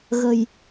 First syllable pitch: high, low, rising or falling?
low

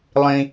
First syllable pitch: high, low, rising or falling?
high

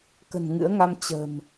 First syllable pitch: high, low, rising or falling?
low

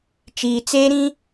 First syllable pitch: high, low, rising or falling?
low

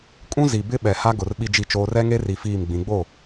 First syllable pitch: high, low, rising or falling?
high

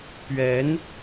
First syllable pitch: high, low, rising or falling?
rising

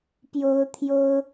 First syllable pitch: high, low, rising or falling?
high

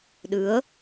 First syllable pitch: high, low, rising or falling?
rising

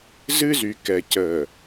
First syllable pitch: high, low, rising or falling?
high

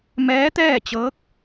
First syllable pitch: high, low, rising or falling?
rising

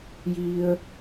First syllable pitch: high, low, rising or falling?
high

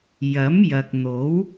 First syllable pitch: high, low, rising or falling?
rising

